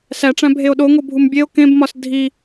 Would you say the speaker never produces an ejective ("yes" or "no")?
yes